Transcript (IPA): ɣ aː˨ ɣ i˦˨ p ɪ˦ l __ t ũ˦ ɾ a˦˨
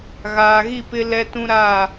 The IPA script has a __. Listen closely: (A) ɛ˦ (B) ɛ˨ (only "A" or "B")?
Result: A